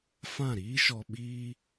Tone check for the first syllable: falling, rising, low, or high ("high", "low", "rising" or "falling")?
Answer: falling